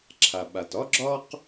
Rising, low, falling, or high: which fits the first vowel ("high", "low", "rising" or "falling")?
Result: low